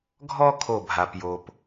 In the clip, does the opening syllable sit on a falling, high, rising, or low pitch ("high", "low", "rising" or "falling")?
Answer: high